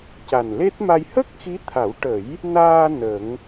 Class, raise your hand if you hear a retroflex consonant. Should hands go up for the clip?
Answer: yes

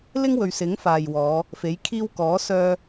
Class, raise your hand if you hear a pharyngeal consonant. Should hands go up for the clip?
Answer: no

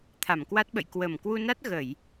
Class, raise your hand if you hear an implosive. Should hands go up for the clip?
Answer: yes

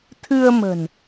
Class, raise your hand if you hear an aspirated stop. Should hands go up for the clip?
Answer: yes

